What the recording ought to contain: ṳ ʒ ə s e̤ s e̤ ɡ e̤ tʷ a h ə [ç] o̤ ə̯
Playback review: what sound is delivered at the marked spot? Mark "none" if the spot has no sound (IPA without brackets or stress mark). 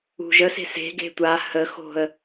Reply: x